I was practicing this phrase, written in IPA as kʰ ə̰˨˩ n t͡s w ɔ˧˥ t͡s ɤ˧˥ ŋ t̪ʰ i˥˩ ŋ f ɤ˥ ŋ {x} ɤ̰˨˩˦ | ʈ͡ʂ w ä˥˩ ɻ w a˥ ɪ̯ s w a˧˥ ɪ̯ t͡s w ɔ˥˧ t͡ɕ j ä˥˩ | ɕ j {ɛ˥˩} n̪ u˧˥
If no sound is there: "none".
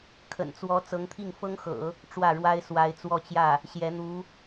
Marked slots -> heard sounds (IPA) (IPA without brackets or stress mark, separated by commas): x, ɛ˧˥